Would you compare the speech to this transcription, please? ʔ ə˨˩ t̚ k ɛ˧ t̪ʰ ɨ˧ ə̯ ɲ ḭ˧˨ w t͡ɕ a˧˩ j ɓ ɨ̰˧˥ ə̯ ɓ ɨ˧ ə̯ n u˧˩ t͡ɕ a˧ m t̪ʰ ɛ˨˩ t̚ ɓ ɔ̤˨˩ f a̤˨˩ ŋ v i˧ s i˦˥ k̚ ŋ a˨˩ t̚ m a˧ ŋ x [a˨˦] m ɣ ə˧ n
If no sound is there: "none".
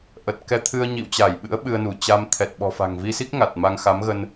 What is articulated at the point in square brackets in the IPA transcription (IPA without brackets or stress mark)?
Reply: a˨˦